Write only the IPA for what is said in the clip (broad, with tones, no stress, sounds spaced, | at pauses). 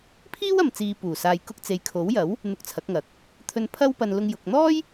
pʰ iː˥ w ɐ˨ m t͡s iː˨ p uː˨˩ s aː˨ j k ʊ˧ k̚ t͡s e˨ j kʰ o˨˥ w j ɐ˨˥ w | n̪ ʊ˧ k̚ t͡sʰ ɐ˨˥ k̚ ŋ ɐ˨ k̚ | t̪ʰ ɵ˧ n pʰ ɐ˥ w p ɐ˧ n l ʊ˧ ŋ j ʊ˨ k̚ n̪ ɔː˥ j